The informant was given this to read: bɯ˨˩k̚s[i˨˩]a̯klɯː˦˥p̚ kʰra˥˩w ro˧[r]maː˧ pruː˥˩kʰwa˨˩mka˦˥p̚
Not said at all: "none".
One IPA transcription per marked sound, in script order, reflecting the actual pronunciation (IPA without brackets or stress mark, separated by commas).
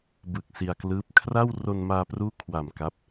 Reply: i˧, n